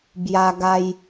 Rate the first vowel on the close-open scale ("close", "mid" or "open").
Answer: open